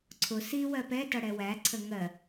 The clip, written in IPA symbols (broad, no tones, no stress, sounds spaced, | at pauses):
ǀʰ ʊ s i w ɜ p ɛ t ʌ ɽ ɛ w æ ǀʰ ə ŋ ɜ